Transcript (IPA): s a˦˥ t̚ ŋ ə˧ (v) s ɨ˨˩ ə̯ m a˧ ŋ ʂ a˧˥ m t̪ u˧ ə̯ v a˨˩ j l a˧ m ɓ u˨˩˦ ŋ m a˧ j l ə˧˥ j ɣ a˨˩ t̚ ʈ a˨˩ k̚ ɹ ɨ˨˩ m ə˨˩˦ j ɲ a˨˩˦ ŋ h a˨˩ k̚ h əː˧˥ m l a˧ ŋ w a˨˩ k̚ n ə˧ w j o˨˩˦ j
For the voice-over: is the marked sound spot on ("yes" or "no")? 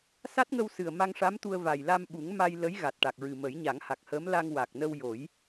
no